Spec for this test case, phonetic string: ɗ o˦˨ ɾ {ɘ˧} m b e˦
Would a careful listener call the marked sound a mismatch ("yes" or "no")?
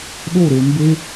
yes